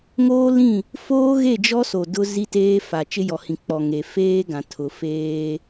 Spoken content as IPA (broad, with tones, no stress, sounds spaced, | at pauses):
ŋ oː˦ l ĩ˦˨ | f oː˦ ɣ e˦˨ d͡ʒ ɔ˦ s o˨ d ʊ˦ z i˦ t eː˦ f a˨ t͡ʃ ɪ˦ j ɔ˨ h ĩ˨ k͡p ɔ˨ ŋ e˨ f eː˦ ɡ ã˨ tʰ ʊ˨ f eː˦